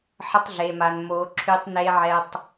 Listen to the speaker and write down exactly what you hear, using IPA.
ħ ə˦ tˤ ɮ e˨ m a˨ n m o˨˦ ǁʰ y˦ tˤ n e˦ ʕ ɛ˨ tˤ

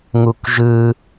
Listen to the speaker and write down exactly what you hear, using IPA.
ŋ u k ʒ ɯ

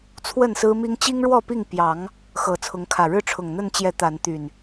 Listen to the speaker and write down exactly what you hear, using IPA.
t͡sʰ w ə˥˨ n s ɹ̩˦ m i˦ ŋ t͡ɕ i˦ ŋ ɻ w ɔ˥˨ p i˥˨ ŋ p j ɑ˨˦ ŋ | x ɤ˨˦ t͡sʰ ʊ˨˦ ŋ kʰ ä˨˩ ɻ ɻ̩˥˨ ʈ͡ʂʰ ʊ˨˩ ŋ n̪ ə˥˨ n t͡ɕ j ɛ˨˦ t̪ a˨˦ n t̪ y˨˩ n

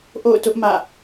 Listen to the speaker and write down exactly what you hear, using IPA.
ʔ o̰˦˨ ʊ̯ t ʊ˦ ʔ m ä̰˦˨

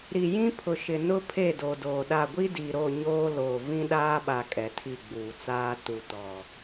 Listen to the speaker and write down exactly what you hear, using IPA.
ɾ i˨ j ĩ˦ pʰ ʊ˨ ʃ ɪ˨ n ʊ˦ pʰ e˦˨ d o˨ d oː˨ ɗ a˦˨ ɡʷ i˦ d i˨ ɾ o˦˨ ɲ oː˦ l oː˨ v ĩ˦ ɗ aː˦ ɓ a˨ kʼ ɛ˨ tʰ i˦˨ ɡ͡b uː˨ t͡s aː˦ t u˨ t ɔ˨

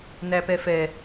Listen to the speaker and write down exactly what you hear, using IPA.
n æ p ɛ f ɛ

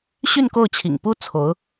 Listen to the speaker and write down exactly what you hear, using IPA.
ɕ y˥˧ n k o˥˩ ʊ̯ t͡ɕʰ ḭ˨˩ ŋ p u˥ t͡sʰ o˧˥ ʊ̯

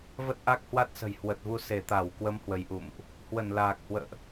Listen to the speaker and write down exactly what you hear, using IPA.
v ə˦˥ t̚ ʔ a˦˥ k̚ h w a˦˥ t̚ s ə̤˨˩ j h w ə˨˩ t̚ v u˧ s e˧˩ t̪ a˧˩ w k w ə˨˦ m h w ə˨˦ j ʔ ṵ˧˨ m ʔ | h w ə˧˩ n l aː˨˩ k̚ h w ə̰ː˧˨ ʔ

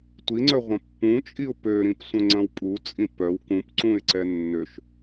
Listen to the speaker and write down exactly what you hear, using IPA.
tʷ i ŋ͡ǀ œ ʁʷ ɐ̃ pː ũ t͡ʃʼ i ʊ̯ p ø ɾ ĩ p sʷ œ̃ ŋ͡ǀ ɐ̃ w pʼ u t͡sʼ ĩ p œ w k ũ p ǀ ũ ɪ̯ ǀ ɛ nː ø ʃ

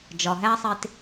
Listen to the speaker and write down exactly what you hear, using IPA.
d͡ʒ ɒ˨ ɦ æ˦ sˤ e˧ t

